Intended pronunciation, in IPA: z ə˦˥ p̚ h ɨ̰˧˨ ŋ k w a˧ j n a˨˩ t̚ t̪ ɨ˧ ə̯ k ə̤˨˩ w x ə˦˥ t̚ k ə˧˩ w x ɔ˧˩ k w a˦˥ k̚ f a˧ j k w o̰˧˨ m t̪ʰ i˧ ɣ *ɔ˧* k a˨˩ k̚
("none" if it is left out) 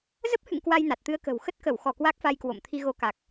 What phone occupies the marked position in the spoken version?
o˧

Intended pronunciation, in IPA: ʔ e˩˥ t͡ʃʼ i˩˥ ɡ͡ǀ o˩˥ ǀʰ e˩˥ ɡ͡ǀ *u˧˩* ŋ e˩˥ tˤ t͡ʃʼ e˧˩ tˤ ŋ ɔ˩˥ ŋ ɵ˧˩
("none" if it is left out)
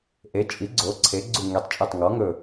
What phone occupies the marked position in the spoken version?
u˧˩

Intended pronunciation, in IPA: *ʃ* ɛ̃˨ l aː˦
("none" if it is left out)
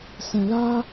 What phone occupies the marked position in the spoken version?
s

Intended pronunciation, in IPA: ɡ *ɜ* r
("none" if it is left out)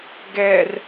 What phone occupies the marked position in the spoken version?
ɛ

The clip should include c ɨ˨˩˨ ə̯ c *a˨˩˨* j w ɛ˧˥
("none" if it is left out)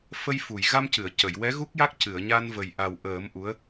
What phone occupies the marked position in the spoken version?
ə˨˩˨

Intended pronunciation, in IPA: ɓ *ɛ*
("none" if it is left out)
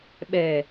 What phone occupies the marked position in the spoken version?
ɛ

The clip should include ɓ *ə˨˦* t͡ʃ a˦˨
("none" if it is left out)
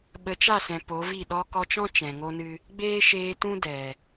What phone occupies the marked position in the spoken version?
ə˨˦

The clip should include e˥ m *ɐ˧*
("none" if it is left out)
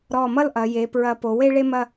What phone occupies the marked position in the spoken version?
ɐ˥˧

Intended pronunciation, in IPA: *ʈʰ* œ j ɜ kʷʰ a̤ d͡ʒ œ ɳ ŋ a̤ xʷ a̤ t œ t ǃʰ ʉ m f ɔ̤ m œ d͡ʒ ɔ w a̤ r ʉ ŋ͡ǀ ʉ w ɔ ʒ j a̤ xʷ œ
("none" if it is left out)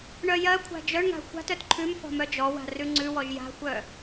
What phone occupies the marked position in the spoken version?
ɳ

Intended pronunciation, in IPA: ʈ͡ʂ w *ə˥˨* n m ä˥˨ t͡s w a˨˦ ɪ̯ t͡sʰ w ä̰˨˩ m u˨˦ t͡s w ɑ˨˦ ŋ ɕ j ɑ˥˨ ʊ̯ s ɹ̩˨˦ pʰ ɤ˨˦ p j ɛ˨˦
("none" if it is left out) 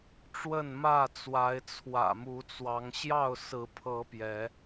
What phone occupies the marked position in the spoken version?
ə˥˨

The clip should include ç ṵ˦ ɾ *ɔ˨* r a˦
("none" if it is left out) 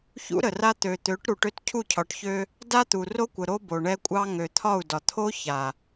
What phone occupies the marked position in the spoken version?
ə˨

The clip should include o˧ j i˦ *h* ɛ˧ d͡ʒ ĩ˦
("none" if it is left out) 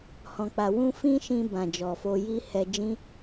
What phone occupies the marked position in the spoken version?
h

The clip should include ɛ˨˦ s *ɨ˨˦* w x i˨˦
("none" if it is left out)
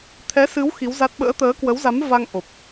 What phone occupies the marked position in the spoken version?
ɨ˨˦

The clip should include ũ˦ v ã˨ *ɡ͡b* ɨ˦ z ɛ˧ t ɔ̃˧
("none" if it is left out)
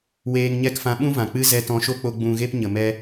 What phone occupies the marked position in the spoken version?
k͡p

